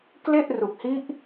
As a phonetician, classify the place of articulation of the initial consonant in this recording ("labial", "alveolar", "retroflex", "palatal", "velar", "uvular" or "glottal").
velar